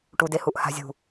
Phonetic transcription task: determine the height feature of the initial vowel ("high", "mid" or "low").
high